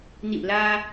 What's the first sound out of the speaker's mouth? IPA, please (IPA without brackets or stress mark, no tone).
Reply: n